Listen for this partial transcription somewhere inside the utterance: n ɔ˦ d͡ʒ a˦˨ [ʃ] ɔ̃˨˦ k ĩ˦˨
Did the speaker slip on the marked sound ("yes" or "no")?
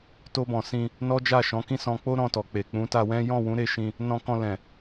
no